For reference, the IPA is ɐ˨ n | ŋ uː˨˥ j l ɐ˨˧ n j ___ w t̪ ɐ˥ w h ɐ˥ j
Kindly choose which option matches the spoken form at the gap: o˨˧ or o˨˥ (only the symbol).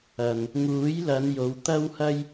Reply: o˨˧